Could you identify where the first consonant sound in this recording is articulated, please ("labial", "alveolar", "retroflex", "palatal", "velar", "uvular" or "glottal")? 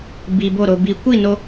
labial